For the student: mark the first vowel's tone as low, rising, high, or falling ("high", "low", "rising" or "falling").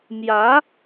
rising